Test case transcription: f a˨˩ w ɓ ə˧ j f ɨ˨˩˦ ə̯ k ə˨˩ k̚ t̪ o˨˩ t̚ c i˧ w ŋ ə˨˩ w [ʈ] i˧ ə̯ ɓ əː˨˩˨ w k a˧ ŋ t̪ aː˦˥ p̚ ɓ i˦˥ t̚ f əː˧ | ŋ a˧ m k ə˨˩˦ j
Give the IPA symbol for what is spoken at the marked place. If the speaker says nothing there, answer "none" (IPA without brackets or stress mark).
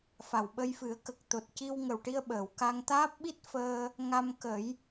ʈ